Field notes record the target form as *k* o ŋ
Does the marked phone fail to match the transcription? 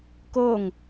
no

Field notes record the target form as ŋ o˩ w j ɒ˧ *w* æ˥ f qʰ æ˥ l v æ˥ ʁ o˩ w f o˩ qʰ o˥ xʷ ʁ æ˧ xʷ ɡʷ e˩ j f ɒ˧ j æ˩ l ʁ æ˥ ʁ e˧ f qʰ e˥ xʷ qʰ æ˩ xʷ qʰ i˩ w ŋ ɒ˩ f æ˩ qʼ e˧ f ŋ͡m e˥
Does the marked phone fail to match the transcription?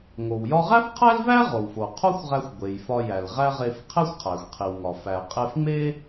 yes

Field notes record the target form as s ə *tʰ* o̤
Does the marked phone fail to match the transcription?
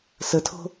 no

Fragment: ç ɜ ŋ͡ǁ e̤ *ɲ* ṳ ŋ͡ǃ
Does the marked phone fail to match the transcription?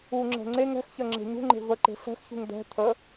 no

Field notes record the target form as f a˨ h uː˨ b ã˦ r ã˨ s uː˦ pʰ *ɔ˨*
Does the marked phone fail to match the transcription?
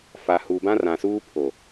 yes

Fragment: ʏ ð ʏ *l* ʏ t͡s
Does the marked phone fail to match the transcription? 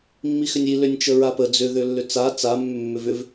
yes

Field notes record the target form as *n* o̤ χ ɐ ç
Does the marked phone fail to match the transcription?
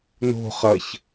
no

